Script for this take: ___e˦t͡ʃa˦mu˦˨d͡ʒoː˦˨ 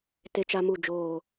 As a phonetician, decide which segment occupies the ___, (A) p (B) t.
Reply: B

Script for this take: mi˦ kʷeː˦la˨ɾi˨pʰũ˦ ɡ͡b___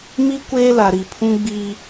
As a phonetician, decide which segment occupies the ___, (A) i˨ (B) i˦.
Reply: B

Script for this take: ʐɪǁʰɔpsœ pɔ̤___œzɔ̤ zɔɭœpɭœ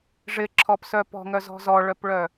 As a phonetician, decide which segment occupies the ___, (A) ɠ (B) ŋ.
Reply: B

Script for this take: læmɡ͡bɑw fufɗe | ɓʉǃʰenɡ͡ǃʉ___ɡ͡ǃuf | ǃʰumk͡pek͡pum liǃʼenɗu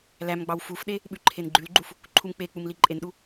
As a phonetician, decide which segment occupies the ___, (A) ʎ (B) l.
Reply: B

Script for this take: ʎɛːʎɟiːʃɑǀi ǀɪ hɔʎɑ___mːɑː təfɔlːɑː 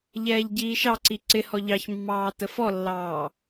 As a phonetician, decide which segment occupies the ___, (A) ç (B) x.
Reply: A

